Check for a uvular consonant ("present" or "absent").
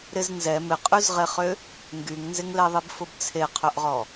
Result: present